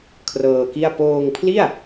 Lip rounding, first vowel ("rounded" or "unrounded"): unrounded